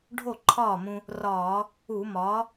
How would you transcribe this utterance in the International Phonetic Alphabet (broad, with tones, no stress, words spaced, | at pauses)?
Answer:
ɖʱo˥˩ǃʰɒː˥˩mũ˧ | rɒː˧˩˧ | u˧˩˧mɒː˩˥